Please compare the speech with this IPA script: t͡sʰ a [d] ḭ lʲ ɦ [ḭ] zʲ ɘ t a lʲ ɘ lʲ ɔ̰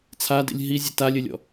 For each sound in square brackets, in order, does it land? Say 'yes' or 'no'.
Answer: yes, no

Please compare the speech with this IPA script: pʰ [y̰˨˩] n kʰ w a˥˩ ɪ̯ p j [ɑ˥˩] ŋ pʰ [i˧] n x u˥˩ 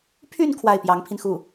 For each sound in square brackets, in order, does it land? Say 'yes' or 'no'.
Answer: no, no, yes

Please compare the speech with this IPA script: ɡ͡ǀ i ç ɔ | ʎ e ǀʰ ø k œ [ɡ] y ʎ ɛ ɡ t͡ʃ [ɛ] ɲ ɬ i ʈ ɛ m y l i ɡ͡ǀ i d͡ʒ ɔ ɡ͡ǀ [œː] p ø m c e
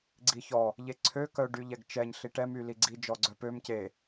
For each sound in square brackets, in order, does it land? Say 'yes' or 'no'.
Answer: no, yes, no

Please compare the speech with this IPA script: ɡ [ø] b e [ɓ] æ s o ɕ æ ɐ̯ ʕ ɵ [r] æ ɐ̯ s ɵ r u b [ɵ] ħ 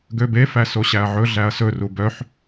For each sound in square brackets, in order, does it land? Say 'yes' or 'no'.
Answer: yes, no, no, no

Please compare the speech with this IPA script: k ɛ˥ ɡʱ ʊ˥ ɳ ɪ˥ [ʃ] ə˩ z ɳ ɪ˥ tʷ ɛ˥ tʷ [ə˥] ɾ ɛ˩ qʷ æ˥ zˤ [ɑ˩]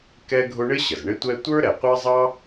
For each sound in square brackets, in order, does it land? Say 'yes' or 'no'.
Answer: no, no, no

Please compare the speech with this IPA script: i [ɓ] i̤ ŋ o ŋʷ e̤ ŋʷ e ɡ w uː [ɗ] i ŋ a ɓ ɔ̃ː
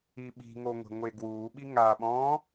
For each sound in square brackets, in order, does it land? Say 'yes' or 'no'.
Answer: yes, no

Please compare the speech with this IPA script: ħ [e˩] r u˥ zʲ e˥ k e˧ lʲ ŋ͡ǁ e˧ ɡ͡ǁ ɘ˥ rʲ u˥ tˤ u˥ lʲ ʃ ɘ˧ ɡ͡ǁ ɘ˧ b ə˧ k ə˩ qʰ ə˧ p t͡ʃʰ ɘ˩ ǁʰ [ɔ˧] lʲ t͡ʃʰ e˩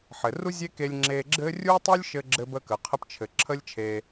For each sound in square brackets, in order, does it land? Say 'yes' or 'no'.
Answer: no, no

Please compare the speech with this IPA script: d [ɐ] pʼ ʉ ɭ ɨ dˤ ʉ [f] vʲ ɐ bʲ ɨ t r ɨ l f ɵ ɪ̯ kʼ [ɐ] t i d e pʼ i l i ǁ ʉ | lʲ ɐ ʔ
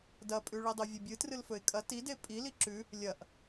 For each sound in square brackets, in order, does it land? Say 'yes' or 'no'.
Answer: yes, no, yes

